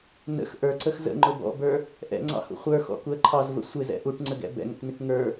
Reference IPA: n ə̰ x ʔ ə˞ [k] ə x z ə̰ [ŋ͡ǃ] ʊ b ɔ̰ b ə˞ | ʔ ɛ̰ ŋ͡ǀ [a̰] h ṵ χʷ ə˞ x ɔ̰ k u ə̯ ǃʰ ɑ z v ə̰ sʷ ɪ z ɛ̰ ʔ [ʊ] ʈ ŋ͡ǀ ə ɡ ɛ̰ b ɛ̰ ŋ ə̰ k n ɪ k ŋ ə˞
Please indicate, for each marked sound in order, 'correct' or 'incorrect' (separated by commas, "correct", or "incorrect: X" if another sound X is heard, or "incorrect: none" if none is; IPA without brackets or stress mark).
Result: incorrect: ǀ, correct, incorrect: ɑ̰, incorrect: u